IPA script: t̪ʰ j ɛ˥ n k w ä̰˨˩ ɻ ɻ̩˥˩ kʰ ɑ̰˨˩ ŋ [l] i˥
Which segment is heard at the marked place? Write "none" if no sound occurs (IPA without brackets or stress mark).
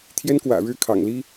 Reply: l